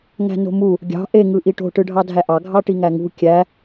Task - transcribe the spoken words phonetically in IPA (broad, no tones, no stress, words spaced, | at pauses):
ŋæ̤no̤mu | ɡʲɑ̤ ʔe ŋɯʔiʈo̤ ʈɯɖʱɑdʱæʔɑ ɡʱɑʈiŋæŋṳ kʲæ